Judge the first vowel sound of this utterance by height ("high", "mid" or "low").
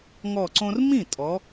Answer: mid